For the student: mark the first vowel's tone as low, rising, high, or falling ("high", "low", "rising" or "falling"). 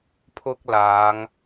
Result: high